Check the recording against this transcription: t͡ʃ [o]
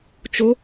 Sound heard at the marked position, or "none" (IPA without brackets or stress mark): o